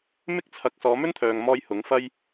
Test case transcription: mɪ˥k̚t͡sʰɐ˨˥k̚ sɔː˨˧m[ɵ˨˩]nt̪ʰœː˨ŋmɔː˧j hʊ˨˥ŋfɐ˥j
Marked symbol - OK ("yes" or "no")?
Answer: no